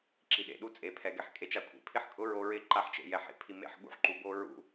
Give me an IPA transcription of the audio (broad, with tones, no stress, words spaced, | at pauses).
ǁi˨ɗḛ˨ɗu˦ t͡sʼe˨˦pʰɛ˨ɡɛ˧ħ kʼe˧t͡ʃa˧kʷʰḭ˨ pʰɪ˦ħkʼʊ˦ ɹo˧ɹɪ˦˨ ǃa˧ħt͡ʃḛ˨ jɛ˨ħḛ˨ pʰi˨ mḛ˧ħ ɠṵ˦ħǃu˨bo˦ ɹṵ˧